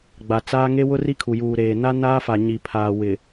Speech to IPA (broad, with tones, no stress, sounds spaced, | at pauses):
ɡ͡b a˨ t͡s aː˦ ŋ e˦ w ʊ˦ r i˦ kʰ u˨ j uː˨ ɾ eː˨ n a˦ n aː˦ f a˨ ɲ i˨ pʰ aː˨ w ɪ˨